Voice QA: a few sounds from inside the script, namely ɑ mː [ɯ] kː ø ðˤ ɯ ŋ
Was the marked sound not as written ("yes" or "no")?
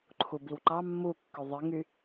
yes